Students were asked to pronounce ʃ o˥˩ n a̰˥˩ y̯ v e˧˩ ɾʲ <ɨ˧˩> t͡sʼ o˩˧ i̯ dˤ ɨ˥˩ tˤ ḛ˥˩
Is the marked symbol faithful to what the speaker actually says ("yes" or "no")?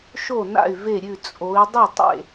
no